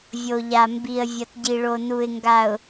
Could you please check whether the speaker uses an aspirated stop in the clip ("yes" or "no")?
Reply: no